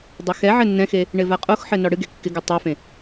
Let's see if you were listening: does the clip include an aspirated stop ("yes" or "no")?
no